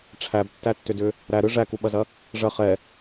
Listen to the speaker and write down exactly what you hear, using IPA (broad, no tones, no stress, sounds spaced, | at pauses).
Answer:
ʈ͡ʂʰ æ b tː æ tː ʏ d ʏ | ɾ æ ɾ ɯ ʐ æ k u ɓ ɐ z ɐ | ʐ ɐ χ ɛ